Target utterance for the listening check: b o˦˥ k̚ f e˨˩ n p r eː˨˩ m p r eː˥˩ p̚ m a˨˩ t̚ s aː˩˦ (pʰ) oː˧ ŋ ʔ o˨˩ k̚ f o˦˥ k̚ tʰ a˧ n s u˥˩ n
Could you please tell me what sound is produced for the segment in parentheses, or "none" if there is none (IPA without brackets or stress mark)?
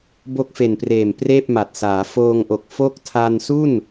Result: f